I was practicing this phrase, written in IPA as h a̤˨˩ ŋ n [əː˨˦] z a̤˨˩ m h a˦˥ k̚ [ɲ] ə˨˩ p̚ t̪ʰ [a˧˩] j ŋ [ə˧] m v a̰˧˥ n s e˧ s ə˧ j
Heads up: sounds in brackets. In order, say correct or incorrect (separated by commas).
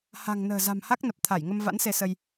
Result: incorrect, incorrect, correct, correct